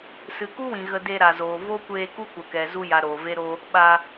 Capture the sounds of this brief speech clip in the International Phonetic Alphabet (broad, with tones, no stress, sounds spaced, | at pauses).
s ɨ˨ k u˦ w ĩ˨ ɣ ə˧ d e˧ ɾ a˨ z oː˨ v o˦ kʷ eː˧ k u˦ kʷ ə˨ k ɛ˨ z u˧ j a˨ ɾ oː˨ v e˦ ɾ o˦ | ɓ a˧